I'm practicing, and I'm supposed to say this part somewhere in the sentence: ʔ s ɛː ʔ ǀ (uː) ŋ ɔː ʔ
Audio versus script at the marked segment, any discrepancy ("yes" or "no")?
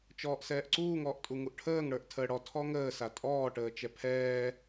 no